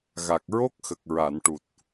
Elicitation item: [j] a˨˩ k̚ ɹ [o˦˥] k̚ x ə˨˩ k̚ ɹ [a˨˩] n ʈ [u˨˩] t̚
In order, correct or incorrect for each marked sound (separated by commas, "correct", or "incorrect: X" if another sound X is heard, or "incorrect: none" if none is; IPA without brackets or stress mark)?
incorrect: ɣ, correct, incorrect: a˨˩˨, correct